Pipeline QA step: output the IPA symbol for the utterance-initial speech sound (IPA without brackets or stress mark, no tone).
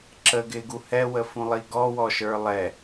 ǁ